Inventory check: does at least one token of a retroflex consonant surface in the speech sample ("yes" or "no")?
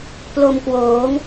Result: no